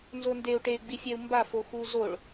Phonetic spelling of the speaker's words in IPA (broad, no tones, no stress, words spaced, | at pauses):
nzondeu̯ ʈey̯ɡ͡bifʲɛu̯ mbafoxu zoɭ